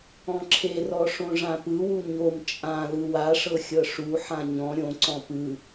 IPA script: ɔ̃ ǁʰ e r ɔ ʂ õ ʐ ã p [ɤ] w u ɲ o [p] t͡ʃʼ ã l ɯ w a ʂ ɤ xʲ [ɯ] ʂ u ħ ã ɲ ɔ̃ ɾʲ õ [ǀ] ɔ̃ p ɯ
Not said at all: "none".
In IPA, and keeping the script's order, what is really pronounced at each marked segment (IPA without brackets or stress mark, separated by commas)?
ɯ, m, ɤ, ǀ